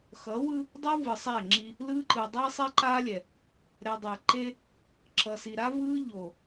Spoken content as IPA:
xʌ˨˦wɯ˦ | dˤo˦ vɯ˨sˤɛ˦˨ŋ͡ǁi˦ | lɯ˦ǃɯ˨ dˤe˦sˤe˦ ǃa˦lʲɛ˨ | ɾɛ˨dˤɛ˨ ǃe˦ | ǁʌ˨si˨ɾa˦ vɯ˦ ʎo˨

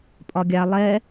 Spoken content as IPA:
pʼɒɡʲa lˠɛ

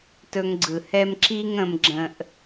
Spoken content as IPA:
tɵ˧ŋɡ͡ǀɯ˨hɛ˦m ǁi˦ŋ ə̃˦mɡ͡ǁə̃˦ʔ

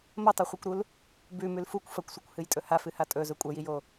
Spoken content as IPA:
mɐtˤoχʷikʷɾul | bʉmʉl fukʷ fɐkʷsʷekʷhɨjtʼɵ hafɨha tʼɵzɵ kʷʼɐjijo

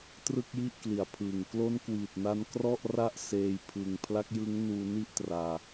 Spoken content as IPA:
trɯ˥˩k̚ji˥˩ʔ kli˩˦a̯pʰɯː˨˩ŋ klo˦˥nkwiː˨˩t̚na˧n krɔ˥˩ʔra˦˥ʔ seː˧jpʰɯ˨˩ŋ pʰla˦˥k̚jɯ˦˥ŋnuː˧ni˥˩ʔ traː˧

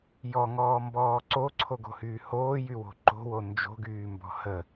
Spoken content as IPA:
jɔŋɔːmbɔː ǀoǀʰoɡo̤hyː hoːjywo̤ ǃo̤wo nd͡ʒo̤ɡyːmbɔ̤ hə

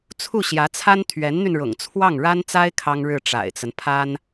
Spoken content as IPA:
t͡sʰu˥˩ɕjä˧˥t͡sʰa˥n t̪ʰɥɛ˧˥nn̪y˧nɻʊ̰˨˩ŋ t͡sʰwɑ˥˩ŋɻa˥nt͡sa˥ɪ̯ kʰɑ˥ŋɻɻ̩˥˩ ʈ͡ʂa̰˨˩ɪ̯t͡sə˦n pʰa˥n

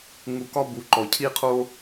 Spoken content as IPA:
ŋu˨kɒ˦bu˩ ǃɔ˩cʰi˦qʰo˦

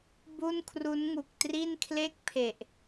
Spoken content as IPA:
bu˥˩nkʰru˦˥nŋu˨˩k̚ tri˥˩n kʰle˥˩k̚pʰe˨˩ʔ

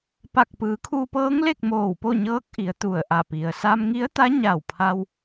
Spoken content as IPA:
pa˧˩k̚pɯː˩˧kʰuː˧pɤː˧˥ŋ le˥˨k̚moː˧˩wpo˥˨ɲɤː˧˥k̚ ʔi˩˧ə̯t̪u˧˩ə̯ʔa˧˩ pi˩ə̯ sa˧mŋi˧˥ə̯t̪a˧˥ ɲa˧˩w pʰa˧w

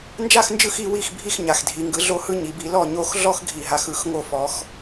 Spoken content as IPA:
nd͡ʒa˥˩xnd͡ʒɯ˥˩x i˦wi˥˩xbʱi˥˩x ɲa˨˩xdʱi˨˩˦ŋɡɯ˨˥ ɮo˦hɯ˦ ɲi˨˩˦bi˨˥ lɔ˥˩ɲo˥˩x ɮɔ˦xɡʱi˨˩ɦa˨˩xɯ˨˩˦x ŋo˥˩fɔ˨˥x

